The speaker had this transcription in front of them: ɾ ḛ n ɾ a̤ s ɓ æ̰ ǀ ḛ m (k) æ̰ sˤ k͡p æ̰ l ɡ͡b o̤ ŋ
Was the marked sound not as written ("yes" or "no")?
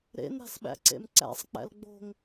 yes